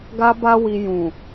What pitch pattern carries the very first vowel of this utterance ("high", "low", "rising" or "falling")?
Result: high